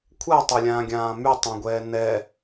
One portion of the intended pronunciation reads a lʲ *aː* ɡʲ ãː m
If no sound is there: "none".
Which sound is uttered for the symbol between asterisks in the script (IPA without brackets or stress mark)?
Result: ãː